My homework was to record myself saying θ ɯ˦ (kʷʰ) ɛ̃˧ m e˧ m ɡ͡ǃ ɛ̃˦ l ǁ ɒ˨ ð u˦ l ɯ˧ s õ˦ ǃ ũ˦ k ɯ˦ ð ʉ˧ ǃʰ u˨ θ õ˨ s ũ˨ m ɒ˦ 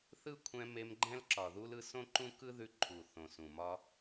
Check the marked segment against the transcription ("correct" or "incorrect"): correct